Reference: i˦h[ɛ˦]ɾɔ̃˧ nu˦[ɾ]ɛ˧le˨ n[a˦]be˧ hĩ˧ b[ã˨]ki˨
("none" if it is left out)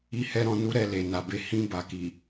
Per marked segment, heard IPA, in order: ɛ˦, ɾ, a˨, a˨

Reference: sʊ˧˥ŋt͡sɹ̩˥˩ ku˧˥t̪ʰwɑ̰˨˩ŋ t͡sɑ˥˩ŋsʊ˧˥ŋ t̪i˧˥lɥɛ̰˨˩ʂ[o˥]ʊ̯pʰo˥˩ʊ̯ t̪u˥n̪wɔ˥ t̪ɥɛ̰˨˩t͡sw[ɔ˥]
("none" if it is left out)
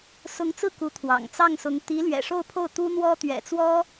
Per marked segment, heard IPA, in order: o˥˧, ɔ˥

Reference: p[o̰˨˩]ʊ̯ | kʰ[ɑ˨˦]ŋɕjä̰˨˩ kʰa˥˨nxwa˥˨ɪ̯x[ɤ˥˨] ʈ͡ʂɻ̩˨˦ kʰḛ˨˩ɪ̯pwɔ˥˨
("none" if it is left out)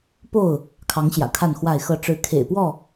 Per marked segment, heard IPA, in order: o˥˨, ɑ˨˦, ɤ˥˨

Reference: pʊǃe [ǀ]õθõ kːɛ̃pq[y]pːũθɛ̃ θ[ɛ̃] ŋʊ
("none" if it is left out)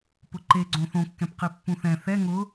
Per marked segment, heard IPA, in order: ɡ͡ǀ, i, ɛ

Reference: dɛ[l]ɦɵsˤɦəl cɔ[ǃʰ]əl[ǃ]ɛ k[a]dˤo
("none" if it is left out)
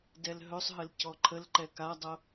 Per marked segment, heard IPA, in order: l, ǃʰ, ǃ, a

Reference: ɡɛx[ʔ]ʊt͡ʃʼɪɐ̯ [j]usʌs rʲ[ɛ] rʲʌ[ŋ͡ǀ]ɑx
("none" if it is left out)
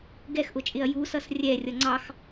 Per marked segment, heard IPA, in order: ʔ, j, ɛ, ŋ͡ǀ

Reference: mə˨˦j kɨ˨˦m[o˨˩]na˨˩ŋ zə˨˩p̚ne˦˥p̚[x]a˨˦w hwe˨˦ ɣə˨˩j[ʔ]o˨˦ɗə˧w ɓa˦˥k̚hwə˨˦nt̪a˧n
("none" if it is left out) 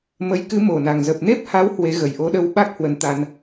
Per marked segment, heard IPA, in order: o˨˩, h, ʔ

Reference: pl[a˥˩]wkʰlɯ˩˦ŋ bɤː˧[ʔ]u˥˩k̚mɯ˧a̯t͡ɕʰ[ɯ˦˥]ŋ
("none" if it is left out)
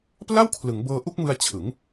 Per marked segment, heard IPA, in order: a˥˩, ʔ, ɯ˩˦

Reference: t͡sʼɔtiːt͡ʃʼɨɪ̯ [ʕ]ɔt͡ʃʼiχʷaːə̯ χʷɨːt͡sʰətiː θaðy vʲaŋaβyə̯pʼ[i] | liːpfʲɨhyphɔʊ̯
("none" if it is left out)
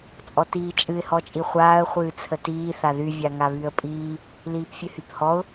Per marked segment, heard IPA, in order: h, iː

